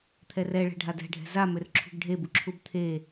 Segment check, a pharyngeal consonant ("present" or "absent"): absent